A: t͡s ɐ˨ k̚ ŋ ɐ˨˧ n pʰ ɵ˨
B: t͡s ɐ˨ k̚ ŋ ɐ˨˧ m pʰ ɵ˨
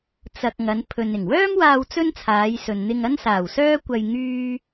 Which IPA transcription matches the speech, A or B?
A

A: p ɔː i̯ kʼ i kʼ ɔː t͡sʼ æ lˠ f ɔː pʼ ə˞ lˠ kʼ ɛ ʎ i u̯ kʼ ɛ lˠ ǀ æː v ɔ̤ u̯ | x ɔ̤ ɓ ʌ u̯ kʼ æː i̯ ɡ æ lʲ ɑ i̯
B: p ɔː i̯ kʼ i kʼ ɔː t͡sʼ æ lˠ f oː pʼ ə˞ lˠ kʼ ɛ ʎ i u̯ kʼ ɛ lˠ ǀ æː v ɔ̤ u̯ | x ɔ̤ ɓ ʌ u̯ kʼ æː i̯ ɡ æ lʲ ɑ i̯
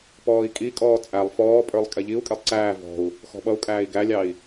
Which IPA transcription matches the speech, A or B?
A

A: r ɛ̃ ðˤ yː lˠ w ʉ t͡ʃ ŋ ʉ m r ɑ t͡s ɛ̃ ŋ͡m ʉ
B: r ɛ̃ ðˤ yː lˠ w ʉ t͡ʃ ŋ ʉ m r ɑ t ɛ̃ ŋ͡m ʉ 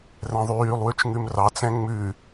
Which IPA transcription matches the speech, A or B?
A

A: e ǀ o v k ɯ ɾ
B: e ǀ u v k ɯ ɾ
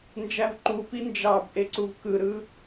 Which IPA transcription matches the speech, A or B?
B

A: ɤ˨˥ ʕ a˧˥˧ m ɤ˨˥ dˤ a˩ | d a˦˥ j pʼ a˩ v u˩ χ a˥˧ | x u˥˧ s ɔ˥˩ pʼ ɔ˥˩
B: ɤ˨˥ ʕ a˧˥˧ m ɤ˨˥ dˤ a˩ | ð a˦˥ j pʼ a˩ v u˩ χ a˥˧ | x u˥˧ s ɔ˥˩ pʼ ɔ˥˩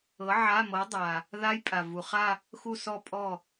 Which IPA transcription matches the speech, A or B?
B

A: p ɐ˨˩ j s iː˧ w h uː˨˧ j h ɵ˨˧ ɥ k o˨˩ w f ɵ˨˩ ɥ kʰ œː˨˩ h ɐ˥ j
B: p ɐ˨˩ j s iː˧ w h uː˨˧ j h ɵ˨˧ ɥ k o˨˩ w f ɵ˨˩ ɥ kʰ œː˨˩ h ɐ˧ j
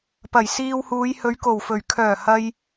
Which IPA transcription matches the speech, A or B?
B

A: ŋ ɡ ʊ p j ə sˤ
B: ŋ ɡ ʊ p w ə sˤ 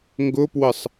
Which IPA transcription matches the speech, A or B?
B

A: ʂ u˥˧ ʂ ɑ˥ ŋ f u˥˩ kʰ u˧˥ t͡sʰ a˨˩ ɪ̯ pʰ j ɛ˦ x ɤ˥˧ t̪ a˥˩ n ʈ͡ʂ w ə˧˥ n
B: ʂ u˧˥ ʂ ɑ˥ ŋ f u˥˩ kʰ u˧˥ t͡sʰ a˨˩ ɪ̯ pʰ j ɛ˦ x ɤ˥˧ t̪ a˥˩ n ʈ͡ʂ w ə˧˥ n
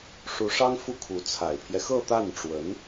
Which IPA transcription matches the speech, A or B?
B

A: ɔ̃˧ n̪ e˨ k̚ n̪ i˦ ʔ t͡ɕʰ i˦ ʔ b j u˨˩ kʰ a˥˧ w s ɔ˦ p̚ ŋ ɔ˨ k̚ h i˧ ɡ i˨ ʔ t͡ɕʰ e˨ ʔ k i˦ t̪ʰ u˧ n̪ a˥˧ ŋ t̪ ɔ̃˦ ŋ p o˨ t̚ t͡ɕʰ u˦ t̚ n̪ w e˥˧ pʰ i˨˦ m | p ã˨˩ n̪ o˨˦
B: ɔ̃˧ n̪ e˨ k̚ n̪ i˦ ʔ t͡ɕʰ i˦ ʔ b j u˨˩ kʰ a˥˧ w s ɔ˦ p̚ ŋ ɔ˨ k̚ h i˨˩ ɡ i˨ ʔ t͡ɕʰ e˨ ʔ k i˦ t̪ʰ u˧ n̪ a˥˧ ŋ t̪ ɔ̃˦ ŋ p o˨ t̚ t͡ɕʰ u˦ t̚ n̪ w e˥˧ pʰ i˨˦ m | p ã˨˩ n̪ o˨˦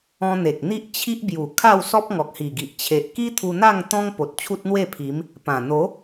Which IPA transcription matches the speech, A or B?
B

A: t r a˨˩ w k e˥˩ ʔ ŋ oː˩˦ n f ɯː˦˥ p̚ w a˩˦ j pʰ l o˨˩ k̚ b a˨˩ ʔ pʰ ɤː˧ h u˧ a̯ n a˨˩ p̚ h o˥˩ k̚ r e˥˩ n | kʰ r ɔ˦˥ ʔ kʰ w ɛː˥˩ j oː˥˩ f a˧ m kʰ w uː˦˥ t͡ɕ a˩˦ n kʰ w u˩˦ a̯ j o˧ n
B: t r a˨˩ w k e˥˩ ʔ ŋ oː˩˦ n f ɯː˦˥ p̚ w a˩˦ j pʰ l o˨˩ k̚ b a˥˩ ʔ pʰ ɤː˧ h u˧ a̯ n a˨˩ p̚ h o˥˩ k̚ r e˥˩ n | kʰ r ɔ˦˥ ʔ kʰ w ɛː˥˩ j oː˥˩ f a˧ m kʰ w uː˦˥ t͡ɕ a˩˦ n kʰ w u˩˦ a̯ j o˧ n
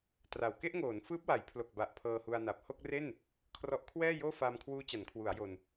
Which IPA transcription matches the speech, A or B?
A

